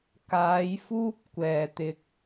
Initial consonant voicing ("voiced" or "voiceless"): voiceless